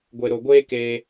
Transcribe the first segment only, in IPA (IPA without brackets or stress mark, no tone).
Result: ɡʷ